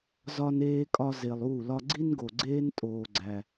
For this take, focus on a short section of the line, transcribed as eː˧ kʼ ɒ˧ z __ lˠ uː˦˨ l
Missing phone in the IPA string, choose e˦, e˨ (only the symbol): e˨